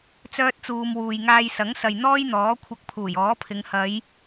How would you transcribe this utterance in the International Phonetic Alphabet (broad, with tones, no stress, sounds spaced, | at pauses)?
t͡s œː˥ t̚ t͡s uː˧ m w uː˨ j ŋ aː˧ j s ɐ˨˥ ŋ s ɐ˨ j n̪ ɔː˥ j n̪ ɔː˨˥ kʷʰ ɐ˧ k̚ pʰ uː˨˩ j ɔː˨˥ pʰ ɪ˨˧ ŋ h ɐ˨˧ j